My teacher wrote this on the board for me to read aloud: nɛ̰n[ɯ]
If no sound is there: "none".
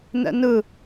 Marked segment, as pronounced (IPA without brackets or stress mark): ɯ